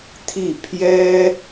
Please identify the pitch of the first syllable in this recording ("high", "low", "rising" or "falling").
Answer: falling